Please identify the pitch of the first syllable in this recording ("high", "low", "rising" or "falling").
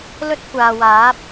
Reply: high